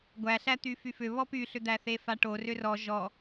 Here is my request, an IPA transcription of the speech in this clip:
ɡʷ æ ɬ æ t̪ y f y f ʏ β ɔ p y ɬ ʏ d̪ æ θ e f a ʈ o r ʏ r ɔ ʒ ɔ

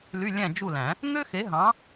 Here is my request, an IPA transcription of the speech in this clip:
l y˧˥˧ lʲ æ̃˥˨ d͡ʒ u˥˨ l æ̃˨˩˦ | ŋ ø˥ x e˨˥ ɦ ɑ̃˨˥

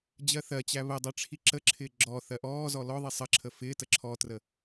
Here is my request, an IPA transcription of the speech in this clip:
d͡ʑ ɜ θ ɜ t͡ɕ æ β ə dˤ ɛ ʈ͡ʂʰ i ǁ ə ǁʰ ɪː ɡ͡ǁ ɔ θ ɜ ʔ ɔː z ɔ l ɔ ðˤ i sˤ ə ǁʰ ə f ɪː t ə ǁʰ ɔ t r ə

